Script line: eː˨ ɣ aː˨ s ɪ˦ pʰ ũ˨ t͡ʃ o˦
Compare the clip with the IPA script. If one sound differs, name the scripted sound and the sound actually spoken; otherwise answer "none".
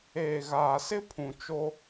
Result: none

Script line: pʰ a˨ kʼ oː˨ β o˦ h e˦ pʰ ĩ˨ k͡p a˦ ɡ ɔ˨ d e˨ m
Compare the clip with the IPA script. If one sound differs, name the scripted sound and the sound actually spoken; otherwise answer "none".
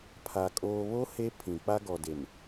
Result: none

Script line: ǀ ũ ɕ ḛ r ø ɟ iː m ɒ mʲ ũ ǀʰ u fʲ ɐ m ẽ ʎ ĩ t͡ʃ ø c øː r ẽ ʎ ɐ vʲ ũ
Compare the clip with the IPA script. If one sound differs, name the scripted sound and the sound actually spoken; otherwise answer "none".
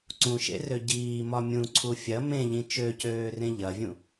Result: ɕ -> ʃ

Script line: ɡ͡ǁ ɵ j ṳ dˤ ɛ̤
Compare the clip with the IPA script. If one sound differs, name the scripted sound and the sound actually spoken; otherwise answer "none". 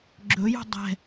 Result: none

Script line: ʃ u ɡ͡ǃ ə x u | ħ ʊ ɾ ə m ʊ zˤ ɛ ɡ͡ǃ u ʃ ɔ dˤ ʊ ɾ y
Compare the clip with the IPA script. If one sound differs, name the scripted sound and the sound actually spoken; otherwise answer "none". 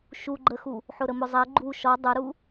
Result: y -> u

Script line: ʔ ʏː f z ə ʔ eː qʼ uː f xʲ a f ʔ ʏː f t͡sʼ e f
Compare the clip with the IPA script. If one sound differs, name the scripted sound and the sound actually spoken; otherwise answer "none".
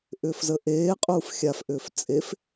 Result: none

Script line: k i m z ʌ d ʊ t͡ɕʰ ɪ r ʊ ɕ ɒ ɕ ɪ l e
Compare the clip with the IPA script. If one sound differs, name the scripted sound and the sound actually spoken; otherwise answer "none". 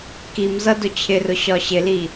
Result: e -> i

